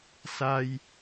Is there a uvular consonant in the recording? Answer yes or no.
no